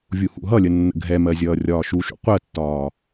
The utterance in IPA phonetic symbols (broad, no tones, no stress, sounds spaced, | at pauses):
vʲ u h ṵ ɦ ʌ lʲ ə nː ə̰ ɡʱ ɛ m ɜ zʲ ʌː rʲ ɒː ʃ u ʃ ṵ qʷ ɜ tː ɒː